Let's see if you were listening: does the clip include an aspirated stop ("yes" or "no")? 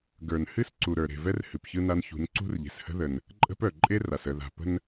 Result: no